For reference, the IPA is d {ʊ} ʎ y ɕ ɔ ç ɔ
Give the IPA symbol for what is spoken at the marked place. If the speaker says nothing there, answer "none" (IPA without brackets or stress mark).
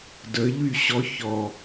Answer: ə